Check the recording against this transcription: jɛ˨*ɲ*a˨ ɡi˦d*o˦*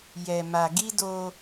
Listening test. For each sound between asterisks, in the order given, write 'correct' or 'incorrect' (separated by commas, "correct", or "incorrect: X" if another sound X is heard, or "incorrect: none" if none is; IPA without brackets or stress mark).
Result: incorrect: m, correct